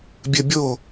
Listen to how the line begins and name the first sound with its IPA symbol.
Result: bʲ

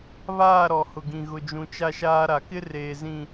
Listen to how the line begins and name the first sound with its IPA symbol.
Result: β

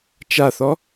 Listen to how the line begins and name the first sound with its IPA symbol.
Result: t͡ʃ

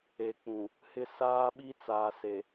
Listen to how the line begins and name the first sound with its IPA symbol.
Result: e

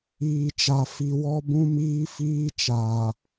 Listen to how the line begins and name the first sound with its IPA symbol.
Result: iː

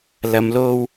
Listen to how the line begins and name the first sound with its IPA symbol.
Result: l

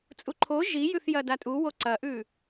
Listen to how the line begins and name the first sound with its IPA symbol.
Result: t͡sʼ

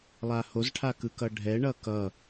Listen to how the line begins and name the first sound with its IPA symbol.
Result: lˠ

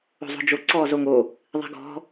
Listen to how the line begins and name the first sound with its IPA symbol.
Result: o̤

